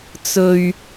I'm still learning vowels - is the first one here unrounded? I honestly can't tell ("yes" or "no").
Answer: no